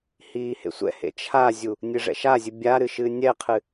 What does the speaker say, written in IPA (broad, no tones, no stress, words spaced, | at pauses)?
hiːhḛsʷɛ̰hḛ t͡ʃʰazʲu | nʲɨʐɛ̰ʃazʲɨ bʲa ɾɨʃɨːnʲɛqʰɨ